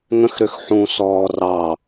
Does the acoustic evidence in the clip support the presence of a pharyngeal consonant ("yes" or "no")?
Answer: yes